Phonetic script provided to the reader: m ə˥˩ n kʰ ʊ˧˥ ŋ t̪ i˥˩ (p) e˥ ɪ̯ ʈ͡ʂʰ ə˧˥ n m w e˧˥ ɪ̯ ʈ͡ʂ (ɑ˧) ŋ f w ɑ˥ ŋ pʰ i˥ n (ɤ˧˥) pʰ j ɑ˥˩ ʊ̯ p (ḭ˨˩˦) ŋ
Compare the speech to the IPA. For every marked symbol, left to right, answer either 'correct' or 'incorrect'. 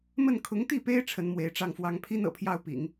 correct, incorrect, incorrect, correct

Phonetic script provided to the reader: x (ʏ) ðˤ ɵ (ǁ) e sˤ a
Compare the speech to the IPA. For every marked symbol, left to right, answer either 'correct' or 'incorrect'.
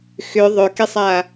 correct, incorrect

